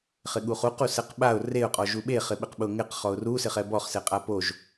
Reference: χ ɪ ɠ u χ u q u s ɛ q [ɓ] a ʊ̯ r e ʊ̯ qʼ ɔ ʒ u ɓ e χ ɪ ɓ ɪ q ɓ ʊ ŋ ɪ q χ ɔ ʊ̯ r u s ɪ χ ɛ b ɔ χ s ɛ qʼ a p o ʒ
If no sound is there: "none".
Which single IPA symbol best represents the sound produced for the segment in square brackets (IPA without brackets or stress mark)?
ɓ